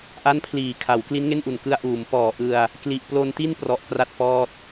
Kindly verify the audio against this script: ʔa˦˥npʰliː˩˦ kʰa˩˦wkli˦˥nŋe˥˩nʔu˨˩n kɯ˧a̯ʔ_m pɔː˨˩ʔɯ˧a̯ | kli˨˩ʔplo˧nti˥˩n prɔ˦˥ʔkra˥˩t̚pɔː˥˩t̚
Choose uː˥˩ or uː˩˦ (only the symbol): uː˩˦